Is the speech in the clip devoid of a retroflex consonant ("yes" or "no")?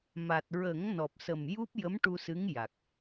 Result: no